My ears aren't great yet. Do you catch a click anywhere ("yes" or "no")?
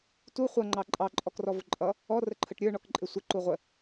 yes